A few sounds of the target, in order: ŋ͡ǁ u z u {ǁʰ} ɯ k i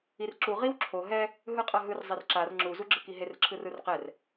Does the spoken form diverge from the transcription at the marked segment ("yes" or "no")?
yes